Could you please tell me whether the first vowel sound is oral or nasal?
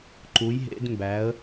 oral